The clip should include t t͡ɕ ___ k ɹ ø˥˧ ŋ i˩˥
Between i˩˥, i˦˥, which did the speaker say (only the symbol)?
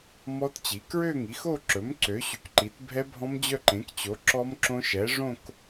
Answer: i˩˥